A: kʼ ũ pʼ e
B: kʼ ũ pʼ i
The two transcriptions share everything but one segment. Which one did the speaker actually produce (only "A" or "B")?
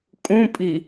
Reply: B